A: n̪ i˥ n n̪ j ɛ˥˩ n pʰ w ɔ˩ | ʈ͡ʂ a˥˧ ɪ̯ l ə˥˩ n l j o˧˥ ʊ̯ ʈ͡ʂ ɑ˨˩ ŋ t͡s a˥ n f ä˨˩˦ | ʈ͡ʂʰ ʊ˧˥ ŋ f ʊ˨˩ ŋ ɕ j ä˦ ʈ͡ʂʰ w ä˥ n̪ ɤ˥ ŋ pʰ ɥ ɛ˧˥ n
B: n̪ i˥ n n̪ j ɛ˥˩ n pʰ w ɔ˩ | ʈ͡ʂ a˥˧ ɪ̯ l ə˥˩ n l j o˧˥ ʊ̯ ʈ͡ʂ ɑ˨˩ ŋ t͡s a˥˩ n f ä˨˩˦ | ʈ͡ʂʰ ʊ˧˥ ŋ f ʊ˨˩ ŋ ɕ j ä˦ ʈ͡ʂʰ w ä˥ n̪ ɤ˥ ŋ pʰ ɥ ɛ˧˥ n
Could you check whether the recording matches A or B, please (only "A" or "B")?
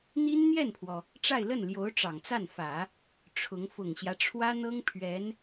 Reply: B